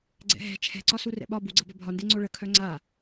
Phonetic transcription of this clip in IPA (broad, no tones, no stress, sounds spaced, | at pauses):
ɡ͡ǀ ɛ̰ ɦ ɛ̤ t͡ʃʰ ɛ̤ ǀ ɒ s u r ɛ̰ ɓ ɒ b u ɡ͡ǀ ɤ b œ bʱ ɒ n d e ŋ͡ǀ o ɭ ə kʰ œ ŋ͡ǀ a